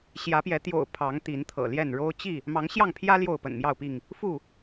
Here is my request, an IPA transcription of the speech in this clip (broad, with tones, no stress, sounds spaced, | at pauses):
ɕ j ä˨˦ p j ɛ˨˦ t̪ j o̰˨˩ ʊ̯ pʰ ɑ˨˦ ŋ t̪ i˨˦ n t̪ʰ ɤ̰˨˩ l j ɛ˥˨ n ɻ o˦ ʊ̯ t͡ɕ i˥˨ | m ɑ˨˦ ŋ ɕ j ɑ˥˨ ŋ pʰ j ä˦ l j o˥˨ ʊ̯ p ə̰˨˩ n m j ɑ˥˨ ʊ̯ p i˥˨ ŋ | f u˥˨